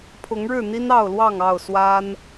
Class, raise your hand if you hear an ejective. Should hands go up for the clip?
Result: no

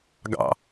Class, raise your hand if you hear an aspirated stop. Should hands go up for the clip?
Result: no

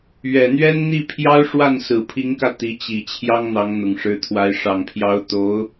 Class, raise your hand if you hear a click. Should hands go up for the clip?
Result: no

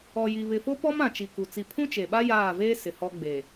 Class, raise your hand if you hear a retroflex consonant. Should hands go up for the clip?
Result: no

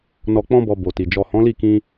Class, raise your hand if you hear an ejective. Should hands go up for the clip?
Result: no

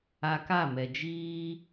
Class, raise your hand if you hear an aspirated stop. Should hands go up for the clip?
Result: no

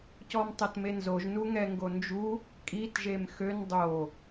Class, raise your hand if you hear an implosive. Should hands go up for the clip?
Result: no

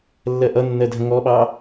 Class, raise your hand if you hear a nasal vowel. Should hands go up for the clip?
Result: yes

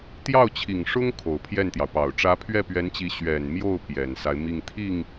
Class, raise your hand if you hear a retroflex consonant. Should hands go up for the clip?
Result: yes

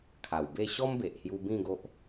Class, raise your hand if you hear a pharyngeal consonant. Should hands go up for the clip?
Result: no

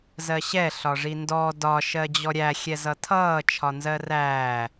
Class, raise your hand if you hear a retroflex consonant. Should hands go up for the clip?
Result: yes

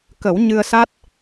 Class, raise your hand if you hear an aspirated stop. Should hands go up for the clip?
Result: no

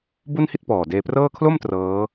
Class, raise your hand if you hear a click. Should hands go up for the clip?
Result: no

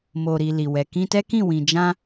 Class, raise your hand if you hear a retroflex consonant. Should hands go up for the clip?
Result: no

